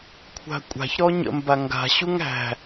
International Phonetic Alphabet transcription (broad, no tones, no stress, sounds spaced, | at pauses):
kʷʰ a̤ kʷʼ a̤ ç ɾ ɔ ɲ ə̰ m b a ŋ ɡ a̤ ɕ u ŋ æ̤